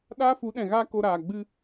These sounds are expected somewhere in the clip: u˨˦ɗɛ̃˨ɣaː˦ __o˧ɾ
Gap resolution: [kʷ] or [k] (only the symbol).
k